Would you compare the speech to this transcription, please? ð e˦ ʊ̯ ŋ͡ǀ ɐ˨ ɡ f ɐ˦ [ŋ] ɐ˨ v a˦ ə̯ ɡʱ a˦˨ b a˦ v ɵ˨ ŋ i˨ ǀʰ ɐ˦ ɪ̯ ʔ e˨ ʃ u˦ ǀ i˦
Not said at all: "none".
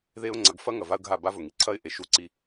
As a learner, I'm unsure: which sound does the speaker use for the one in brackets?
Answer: ŋ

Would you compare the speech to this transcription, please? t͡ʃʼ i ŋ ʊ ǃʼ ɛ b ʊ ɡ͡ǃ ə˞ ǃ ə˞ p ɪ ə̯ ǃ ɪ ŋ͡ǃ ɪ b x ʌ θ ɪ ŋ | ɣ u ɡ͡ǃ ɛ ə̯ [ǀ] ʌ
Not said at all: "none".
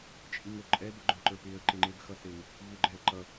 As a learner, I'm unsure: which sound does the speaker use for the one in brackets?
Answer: ǃ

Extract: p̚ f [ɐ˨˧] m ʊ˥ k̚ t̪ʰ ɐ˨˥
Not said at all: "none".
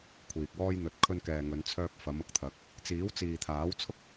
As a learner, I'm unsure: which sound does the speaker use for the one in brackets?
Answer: ɐ˨˧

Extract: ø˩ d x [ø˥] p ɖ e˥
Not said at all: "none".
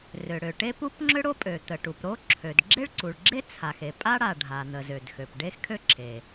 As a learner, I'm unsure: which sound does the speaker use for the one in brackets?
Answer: ø˩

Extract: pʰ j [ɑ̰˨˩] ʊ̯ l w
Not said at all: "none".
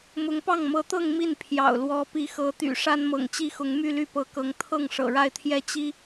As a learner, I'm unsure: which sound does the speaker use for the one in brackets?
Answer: ɑ̰˨˩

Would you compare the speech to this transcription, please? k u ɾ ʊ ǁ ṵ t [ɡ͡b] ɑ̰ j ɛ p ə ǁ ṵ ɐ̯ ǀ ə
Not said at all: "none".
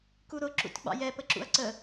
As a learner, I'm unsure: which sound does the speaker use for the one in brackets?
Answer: ɡ͡b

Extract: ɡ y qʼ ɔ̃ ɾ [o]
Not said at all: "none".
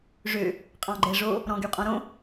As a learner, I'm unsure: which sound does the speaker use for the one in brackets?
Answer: õ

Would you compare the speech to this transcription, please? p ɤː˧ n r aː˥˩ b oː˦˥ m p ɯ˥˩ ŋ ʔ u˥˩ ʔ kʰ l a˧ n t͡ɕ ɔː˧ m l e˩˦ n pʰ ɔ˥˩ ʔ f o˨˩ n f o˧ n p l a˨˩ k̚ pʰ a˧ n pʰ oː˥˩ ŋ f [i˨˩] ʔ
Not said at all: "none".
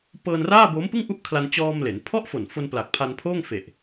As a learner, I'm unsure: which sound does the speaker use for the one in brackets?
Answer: e˨˩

